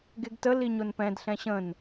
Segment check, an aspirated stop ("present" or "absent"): absent